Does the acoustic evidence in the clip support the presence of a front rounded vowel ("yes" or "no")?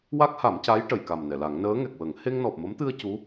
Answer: no